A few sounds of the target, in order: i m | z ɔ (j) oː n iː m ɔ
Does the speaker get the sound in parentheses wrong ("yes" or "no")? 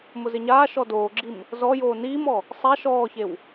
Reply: no